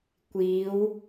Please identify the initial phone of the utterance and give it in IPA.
kʷ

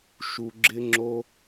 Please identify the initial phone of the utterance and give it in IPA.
ʃ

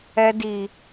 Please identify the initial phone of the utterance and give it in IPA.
ɛ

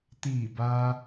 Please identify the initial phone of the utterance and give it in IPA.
t̪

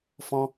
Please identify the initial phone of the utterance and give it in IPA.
f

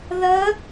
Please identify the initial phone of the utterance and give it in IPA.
ð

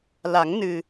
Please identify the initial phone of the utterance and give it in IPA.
l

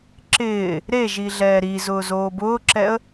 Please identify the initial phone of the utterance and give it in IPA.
ǁ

